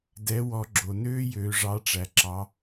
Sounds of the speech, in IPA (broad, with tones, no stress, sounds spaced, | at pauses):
d ɛ˩˧ w ɔ˩˧ ɡ͡ǁ o˩ n øː˧ j øː˩ ʐ ɑ˩˧ ʈ͡ʂ æ˩ ǁ ɑ˩˧